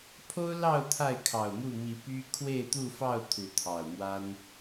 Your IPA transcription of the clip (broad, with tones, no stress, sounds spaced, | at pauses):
pʰ o˦ ʊ̯ l ɑ˥˨ ʊ̯ t̪ʰ a˥˨ ɪ̯ kʰ ɑ˨˩ ʊ̯ m u˥˨ m i˨˦ p y˦ kʰ w e˥˨ ɪ̯ t̪ u˥˨ f ɑ˥˨ ʊ̯ t̪ʰ u˨˦ t̪ʰ ɑ˨˩ ʊ̯ m w a˦ n